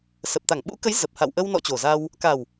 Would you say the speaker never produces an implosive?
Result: no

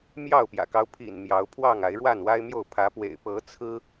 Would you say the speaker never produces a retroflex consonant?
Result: no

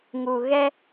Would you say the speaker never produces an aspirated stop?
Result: yes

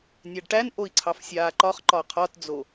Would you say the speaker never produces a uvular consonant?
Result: no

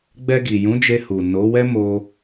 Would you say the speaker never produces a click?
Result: yes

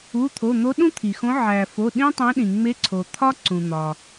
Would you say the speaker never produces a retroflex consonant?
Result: yes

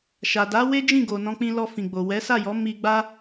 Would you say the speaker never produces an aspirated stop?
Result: yes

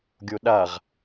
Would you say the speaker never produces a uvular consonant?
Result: no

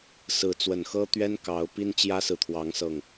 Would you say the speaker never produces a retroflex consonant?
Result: yes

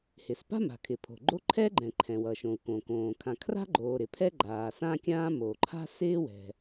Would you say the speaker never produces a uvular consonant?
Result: yes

